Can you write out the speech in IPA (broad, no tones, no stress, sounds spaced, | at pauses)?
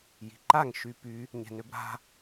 j i̤ ǃ a ŋ ʃ y p y | ɲ ɛ̤ n ø b ɾ a̤